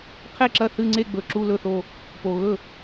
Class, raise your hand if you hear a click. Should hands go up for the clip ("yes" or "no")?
yes